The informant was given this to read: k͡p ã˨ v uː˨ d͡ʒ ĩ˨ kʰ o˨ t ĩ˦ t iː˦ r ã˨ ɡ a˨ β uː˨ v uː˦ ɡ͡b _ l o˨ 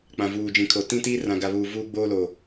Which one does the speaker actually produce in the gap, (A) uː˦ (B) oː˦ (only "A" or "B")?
B